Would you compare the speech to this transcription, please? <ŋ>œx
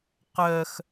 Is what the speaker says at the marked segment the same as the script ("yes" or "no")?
no